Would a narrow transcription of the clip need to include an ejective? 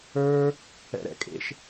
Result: yes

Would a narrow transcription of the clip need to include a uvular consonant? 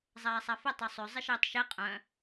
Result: yes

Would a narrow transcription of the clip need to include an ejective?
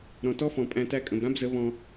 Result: yes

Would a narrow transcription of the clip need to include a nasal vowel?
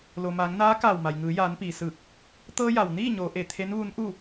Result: no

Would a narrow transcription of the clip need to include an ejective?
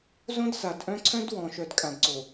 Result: yes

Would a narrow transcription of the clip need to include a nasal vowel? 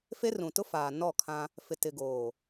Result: yes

